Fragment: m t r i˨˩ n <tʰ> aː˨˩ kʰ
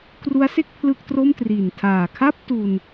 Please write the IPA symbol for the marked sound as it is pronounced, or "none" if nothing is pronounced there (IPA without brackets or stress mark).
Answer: tʰ